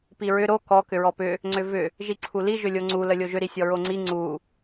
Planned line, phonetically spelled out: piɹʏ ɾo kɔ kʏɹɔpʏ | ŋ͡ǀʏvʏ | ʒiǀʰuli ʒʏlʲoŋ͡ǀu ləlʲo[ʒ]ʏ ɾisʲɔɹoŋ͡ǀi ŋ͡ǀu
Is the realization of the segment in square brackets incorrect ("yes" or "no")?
no